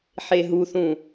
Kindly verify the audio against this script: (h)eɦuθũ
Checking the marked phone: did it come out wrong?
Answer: yes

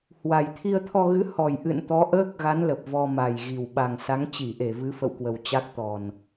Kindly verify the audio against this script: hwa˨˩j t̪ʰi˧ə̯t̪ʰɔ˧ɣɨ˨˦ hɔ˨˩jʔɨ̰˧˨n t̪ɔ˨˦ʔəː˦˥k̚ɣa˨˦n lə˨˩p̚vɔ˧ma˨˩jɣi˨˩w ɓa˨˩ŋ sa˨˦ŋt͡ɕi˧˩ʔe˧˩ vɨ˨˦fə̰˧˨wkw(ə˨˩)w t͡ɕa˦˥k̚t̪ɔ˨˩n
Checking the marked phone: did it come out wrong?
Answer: no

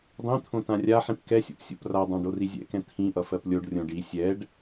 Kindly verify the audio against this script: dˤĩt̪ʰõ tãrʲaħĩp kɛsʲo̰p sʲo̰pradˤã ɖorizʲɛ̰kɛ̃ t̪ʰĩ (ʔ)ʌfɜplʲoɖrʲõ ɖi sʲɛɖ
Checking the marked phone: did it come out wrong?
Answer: no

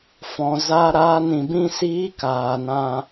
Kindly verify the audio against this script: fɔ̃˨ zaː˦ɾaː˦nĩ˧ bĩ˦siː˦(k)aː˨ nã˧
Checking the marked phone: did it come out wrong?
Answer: no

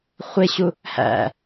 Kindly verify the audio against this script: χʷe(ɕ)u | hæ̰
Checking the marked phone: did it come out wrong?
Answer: no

